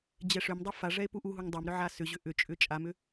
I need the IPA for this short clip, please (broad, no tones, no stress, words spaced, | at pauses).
d͡ʑɛʂʏmdˤɛ faʐɛe̯ puʔuɦuŋ dˤɛmɾʏ ʕasʏʑʏ ʔʏt͡ʃʼʏ t͡ʃʼamʏ